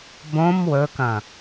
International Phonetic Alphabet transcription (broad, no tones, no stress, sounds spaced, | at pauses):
b õ m w ɵ k ɐ̃